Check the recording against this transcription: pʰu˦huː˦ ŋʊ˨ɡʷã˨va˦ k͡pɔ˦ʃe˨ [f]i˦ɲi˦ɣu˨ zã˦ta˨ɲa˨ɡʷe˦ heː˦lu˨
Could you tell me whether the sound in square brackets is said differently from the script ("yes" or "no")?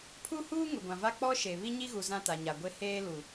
yes